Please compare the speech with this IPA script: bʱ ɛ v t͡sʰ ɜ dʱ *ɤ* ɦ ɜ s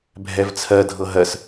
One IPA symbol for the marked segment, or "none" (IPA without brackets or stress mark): ɤ